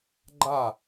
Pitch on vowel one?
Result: falling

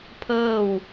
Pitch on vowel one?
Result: falling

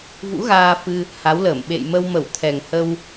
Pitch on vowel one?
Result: rising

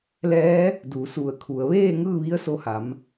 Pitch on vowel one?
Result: rising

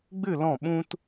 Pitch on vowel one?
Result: falling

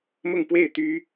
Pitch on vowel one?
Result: falling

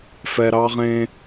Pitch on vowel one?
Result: low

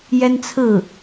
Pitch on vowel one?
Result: high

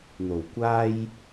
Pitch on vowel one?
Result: low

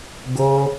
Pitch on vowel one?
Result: high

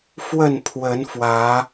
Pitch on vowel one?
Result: falling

